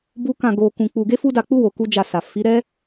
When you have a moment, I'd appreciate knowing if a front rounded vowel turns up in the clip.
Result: no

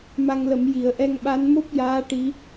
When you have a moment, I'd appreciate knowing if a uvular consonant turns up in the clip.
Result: no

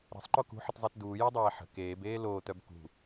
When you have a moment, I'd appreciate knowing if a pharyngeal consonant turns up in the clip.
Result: yes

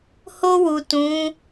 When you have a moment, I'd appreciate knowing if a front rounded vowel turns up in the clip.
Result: no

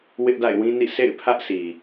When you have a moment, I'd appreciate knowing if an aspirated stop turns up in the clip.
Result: yes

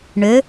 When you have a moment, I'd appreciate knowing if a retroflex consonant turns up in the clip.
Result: yes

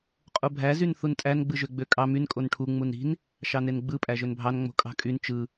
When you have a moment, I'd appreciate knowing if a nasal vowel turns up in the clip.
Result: no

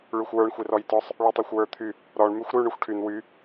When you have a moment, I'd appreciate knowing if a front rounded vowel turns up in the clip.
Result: yes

